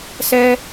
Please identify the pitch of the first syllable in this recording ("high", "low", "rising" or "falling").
high